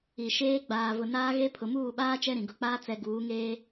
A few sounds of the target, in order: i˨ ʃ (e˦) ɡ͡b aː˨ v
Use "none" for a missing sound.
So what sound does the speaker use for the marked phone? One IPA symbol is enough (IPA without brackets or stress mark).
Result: eː˦